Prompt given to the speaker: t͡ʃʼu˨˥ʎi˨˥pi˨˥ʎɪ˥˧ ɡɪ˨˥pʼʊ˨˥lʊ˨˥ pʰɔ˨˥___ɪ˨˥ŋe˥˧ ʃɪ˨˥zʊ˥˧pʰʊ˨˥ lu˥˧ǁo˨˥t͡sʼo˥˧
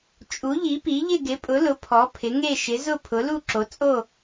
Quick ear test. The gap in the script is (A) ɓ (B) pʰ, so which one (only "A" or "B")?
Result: B